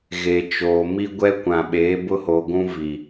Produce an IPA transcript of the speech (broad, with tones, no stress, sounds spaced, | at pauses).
ɣ e˨ t͡ʃ oː˨ m i˦ ɡʷ ɛ˦ kʷ ã˨ ɓ eː˨˦ b ʊ˦ h o˨ ɡʷ ũ˦ v i˨